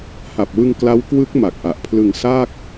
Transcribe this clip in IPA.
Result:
h a˨˩ p̚ w ɯ˧ ŋ k l a˦˥ w k w ɯ˦˥ k̚ m a˨˩ k̚ ʔ a˨˩ ʔ pʰ l ɯ˧ ŋ s aː˥˩ k̚

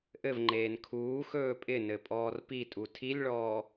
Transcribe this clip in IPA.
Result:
ʔ ɘ v ŋ͡ǃ eː n kʰ uː x ɵː pʼ ɪ n ɘ pʼ ɔː r p i tʼ u tʰ i lʲ ɭ ɔː

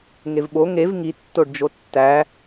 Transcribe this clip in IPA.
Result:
ŋ e v ɓ o ŋ e v ŋ i tː o ɖ d͡ʒ o tː æ

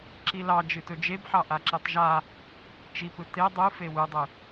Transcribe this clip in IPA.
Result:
ǁ i l ɑ d͡ʒ ɨ t ɵ d͡ʒ e b ħ ɑ ʔ a ǁ ɨ tˤ ʒ a | t͡ʃ i p ɯ t e dˤ ɯ f e w ɯ dˤ ɯ

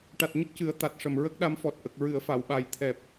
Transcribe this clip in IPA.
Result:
ʈ a˨˩ t̚ ɲ ə˦˥ k̚ c ɨ˨˩˦ ə̯ t̪ a˨˩ t̚ ʂ ə˨˩ m ɹ ə˦˥ k̚ ɗ a˧ m f ɔ˨˩ t̚ ʔ ə˨˩ k̚ ɹ ɨ˨˩˨ ə̯ f a˨˩˨ w ɓ a˨˩ j t̪ʰ ɛ˨˩ p̚

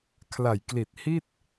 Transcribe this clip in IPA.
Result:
kʰ l a˨˩ j k l i˨˩ t̚ h i˥˩ t̚

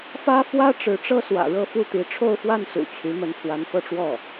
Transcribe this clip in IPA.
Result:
f ä˥ f w ä˥ ʈ͡ʂ ɻ̩˧˥ ʈ͡ʂ ɤ˥ s w ä̰˨˩ ɻ ɤ˥˧ f u˥˩ t̪ i˧˥ ʈ͡ʂʰ o˥˧ ʊ̯ f w a˥˩ n s ṵ˨˩ t͡ɕʰ y˧˥ m ə˧˥ n pʰ w a˧˥ n f ɤ˥˧ ʈ͡ʂ w ɔ˥˩

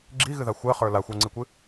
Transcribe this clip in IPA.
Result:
ɡ͡ǁ i ɣ ɨ ð a xʷ ɜ χ ə˞ l a xʷ ə˞ ŋ͡ǀ i kʷ ɨ

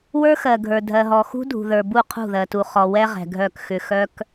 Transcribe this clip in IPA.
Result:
w ə˞˦ x ɜ˨ ɡʱ ə˞˨ dʱ ɜ˨ ɦ ɔ˨ x ṳ˦ dʱ ṳ˨ ð ə˞˨ b u˦˨ qʰ ṳ˦˨ ð ɜ˨ t u˨ χ ɔ˨ w ɛ˦ ʁ ɛ̤˨ ɡʱ œ˦˨ k x ʏ˨ x œ˦ k

